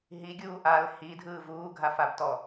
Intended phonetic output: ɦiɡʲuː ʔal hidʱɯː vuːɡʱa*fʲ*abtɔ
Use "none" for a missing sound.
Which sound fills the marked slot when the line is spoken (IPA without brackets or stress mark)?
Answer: f